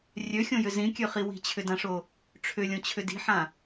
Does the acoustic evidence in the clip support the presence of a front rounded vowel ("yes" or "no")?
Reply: yes